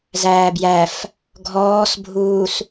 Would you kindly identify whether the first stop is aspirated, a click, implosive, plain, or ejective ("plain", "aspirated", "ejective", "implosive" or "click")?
plain